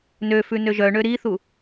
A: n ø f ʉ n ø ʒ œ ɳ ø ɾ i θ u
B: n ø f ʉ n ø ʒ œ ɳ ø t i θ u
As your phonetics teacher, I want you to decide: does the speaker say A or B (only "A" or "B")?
A